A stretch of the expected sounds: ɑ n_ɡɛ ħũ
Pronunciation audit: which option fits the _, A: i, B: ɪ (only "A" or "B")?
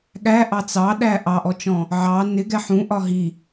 B